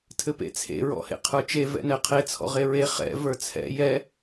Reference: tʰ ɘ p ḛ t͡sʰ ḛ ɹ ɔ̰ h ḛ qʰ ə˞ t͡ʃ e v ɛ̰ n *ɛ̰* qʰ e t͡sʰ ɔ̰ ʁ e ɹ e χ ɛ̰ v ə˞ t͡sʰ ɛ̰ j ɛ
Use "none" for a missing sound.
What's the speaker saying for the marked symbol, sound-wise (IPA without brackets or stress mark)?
ɛ